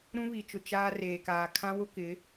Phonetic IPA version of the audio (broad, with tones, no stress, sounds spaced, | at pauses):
ɾ ũ˦ β i˨ t͡ʃ ʊ˨ t͡ʃ aː˦ r eː˨ k aː˨ kʰ ã˦ w ʊ˦ k ɪ˨˦